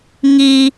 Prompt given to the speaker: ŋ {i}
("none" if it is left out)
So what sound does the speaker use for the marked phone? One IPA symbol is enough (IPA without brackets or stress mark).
i